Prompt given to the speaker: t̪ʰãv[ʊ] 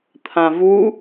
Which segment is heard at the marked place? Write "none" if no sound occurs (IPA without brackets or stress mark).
u